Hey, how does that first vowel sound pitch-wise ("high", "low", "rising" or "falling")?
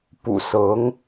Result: low